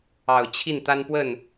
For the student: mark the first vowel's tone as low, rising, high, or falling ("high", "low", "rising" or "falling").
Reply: low